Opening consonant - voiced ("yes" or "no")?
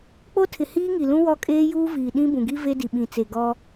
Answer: no